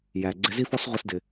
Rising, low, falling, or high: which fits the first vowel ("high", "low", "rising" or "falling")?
low